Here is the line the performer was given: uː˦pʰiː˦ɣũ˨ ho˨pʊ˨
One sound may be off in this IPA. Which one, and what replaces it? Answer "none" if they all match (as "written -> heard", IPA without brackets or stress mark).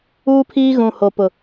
none